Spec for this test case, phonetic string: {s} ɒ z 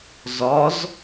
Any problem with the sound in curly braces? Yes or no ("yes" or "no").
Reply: yes